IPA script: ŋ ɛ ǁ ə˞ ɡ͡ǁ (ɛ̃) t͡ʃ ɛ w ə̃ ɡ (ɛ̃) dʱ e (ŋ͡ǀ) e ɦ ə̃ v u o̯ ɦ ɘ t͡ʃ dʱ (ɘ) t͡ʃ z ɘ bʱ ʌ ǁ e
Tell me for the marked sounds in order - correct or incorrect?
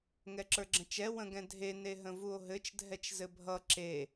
incorrect: ə̃, correct, incorrect: n, incorrect: ɛ

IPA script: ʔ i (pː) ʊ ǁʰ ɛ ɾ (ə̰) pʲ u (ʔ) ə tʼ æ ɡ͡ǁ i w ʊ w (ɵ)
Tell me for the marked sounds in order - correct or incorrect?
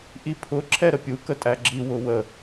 incorrect: pʰ, incorrect: ə, incorrect: k, incorrect: ə

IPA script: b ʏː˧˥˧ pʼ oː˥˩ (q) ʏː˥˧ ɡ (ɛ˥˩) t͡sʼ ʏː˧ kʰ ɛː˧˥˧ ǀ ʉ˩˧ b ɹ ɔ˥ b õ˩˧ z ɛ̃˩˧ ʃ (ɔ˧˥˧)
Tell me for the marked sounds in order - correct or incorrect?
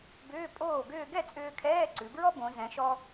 incorrect: ɡ, correct, incorrect: ɔ˧

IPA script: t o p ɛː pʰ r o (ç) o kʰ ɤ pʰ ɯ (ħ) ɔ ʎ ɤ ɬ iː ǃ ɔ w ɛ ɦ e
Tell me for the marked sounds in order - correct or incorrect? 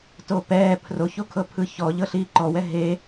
correct, incorrect: ç

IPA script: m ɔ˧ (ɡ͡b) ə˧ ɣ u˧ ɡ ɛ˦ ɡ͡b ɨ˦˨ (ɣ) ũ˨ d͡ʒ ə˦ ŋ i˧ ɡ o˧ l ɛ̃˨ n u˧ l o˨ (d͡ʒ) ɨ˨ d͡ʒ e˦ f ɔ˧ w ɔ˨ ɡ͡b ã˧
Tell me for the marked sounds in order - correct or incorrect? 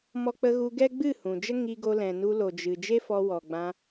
incorrect: k͡p, incorrect: h, correct

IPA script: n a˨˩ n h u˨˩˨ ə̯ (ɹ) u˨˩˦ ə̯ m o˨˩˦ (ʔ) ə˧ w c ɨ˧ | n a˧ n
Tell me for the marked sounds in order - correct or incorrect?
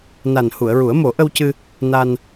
correct, correct

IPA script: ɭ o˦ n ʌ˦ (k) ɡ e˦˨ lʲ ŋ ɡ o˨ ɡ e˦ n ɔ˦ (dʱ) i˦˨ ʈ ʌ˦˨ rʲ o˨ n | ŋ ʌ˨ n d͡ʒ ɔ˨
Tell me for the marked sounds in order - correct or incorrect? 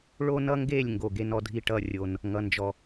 incorrect: ŋ, correct

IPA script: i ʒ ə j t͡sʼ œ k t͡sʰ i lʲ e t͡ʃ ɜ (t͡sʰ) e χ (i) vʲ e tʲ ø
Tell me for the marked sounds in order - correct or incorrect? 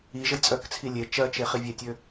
incorrect: t͡ʃ, correct

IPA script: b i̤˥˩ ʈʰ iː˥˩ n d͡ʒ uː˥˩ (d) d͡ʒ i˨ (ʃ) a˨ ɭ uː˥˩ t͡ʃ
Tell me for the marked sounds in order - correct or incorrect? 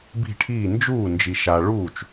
incorrect: n, correct

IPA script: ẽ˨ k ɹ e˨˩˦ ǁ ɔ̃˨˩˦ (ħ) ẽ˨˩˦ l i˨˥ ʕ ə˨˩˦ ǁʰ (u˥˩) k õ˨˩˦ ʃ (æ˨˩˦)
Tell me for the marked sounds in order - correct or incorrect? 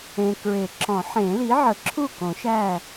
correct, correct, incorrect: æ˥˩

